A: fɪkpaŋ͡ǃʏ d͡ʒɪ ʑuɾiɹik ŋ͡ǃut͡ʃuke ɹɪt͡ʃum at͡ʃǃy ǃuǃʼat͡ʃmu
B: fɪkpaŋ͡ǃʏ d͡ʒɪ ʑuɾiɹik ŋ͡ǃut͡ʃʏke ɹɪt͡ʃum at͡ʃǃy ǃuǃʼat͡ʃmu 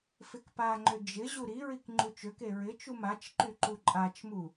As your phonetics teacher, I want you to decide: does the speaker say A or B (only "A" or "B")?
B